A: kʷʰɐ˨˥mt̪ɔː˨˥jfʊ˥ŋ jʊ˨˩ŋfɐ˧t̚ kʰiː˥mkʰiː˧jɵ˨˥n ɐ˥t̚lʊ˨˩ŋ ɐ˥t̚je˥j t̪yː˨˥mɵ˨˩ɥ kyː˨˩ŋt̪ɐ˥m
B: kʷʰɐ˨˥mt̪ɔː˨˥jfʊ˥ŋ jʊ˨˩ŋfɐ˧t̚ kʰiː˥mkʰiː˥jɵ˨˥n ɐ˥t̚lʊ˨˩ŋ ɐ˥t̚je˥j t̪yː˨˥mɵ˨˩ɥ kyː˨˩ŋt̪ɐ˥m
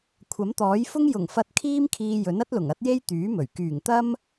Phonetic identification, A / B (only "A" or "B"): A